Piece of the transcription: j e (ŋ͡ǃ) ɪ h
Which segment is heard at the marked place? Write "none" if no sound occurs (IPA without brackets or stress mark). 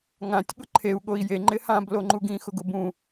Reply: ŋ͡ǃ